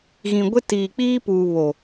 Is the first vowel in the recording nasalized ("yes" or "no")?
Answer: yes